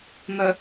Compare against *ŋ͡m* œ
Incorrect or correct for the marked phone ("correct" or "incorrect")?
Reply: incorrect